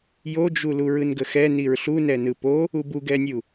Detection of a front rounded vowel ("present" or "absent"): absent